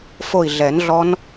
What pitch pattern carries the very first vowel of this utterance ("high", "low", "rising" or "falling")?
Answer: falling